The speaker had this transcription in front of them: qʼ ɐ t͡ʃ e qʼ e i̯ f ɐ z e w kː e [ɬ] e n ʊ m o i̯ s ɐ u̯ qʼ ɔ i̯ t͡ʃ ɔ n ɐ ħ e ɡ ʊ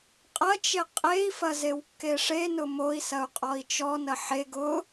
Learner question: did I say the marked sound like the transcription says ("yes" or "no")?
no